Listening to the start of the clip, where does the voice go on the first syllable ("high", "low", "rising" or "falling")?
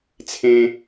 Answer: high